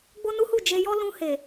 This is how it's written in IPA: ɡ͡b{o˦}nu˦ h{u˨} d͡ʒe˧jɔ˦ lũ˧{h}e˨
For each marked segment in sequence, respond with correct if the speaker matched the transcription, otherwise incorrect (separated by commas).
correct, incorrect, correct